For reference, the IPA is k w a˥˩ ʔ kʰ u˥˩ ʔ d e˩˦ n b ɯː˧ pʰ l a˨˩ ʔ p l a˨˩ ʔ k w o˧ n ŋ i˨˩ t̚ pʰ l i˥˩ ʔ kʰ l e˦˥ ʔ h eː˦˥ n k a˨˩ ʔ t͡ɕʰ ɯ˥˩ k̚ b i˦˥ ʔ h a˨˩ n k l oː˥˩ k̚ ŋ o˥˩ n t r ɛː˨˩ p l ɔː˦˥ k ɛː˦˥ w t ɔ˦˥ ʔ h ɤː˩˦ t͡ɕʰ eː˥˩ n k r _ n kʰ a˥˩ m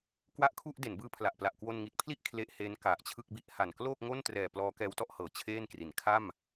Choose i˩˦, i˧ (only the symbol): i˩˦